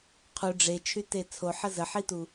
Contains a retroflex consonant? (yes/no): yes